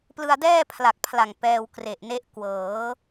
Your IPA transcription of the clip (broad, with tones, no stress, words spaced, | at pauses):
plɯ˧a̯dɛː˥˩ pʰla˨˩k̚ pʰla˨˩ŋ pɛː˧w kre˨˩ʔne˦˥ʔ kwɤː˩˦